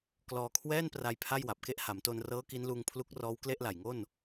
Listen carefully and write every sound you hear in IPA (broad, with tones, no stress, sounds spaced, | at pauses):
k l ɔː˧ kʰ w ɛː˥˩ n p r a˧ j pʰ a˥˩ j w a˨˩ p̚ k e˦˥ ʔ h a˩˦ m t o˧ n r ɤː˦˥ k i˦˥ n l uː˧ ŋ pʰ l u˦˥ k̚ r ɔː˦˥ w k l e˥˩ ʔ l a˨˩ j ŋ o˥˩ n